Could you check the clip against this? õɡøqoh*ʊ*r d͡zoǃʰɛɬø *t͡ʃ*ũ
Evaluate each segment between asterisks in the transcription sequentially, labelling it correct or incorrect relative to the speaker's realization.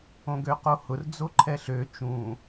correct, correct

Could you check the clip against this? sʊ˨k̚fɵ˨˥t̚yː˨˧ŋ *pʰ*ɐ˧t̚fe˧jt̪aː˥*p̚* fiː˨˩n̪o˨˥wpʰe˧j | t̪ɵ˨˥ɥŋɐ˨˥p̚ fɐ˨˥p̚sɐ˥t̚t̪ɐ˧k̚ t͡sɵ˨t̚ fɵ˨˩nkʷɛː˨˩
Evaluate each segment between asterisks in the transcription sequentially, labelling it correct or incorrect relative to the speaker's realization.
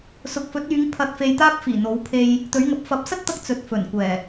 correct, correct

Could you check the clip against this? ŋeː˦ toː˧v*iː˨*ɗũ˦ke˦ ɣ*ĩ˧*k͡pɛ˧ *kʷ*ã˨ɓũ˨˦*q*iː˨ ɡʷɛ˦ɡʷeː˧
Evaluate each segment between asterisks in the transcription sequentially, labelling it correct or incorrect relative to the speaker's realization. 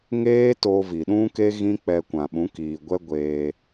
incorrect: i˨, incorrect: ĩ˦, correct, incorrect: k

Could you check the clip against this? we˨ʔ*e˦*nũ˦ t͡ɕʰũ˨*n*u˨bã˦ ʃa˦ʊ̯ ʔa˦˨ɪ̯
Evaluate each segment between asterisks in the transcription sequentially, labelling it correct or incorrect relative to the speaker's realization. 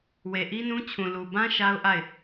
incorrect: i˦, incorrect: l

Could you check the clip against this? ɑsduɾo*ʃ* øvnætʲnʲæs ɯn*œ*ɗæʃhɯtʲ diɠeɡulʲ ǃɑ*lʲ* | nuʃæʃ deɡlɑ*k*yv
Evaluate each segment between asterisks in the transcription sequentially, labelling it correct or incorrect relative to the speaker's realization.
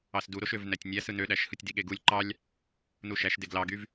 correct, incorrect: ø, correct, incorrect: ɡ

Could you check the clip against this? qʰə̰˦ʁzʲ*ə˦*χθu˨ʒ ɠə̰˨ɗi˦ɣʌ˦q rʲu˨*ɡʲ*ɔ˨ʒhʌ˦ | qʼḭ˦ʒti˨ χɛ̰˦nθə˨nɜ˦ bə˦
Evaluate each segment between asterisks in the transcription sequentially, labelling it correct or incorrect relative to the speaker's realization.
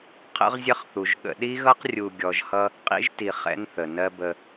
correct, correct

